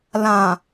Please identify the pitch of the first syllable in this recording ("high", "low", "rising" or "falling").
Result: low